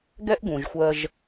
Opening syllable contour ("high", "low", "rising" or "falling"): high